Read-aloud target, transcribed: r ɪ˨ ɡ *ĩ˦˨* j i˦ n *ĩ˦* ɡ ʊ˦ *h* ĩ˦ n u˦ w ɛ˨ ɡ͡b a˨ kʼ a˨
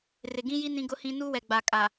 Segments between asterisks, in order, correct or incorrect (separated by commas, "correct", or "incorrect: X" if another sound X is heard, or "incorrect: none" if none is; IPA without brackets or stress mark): incorrect: ĩ˦, correct, correct